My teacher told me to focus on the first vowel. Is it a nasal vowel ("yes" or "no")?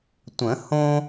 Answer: yes